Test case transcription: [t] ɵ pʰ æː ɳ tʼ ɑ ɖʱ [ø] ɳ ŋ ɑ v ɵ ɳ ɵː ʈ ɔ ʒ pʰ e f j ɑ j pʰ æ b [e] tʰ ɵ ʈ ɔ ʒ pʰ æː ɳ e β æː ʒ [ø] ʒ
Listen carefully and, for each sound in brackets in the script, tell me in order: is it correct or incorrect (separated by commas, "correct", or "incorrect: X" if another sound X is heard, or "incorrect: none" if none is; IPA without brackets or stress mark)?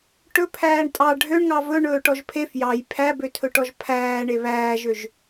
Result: incorrect: ʈ, correct, incorrect: ø, correct